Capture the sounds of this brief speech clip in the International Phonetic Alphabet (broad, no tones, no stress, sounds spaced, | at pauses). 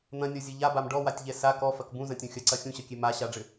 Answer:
n̪ ɐ̃ nʲ ɔ zʲ ɘ ʎ a b a m ɖ ɔ w a tʲ ʎ ɛ s a k ɔ f ɐ k b ũ z ɐ̃ tʲ õ xʲ ɐ ǀ ɐ xʲ ũ ɕ ɐ kʲ e m a ɕ a ɖ͡ʐ ɘ